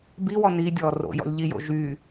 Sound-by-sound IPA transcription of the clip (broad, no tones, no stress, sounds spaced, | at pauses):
b i w ɔ n i dʲ ɔː r o̰ j ɔ̰ lʲ ʎ i j o̰ ʒ y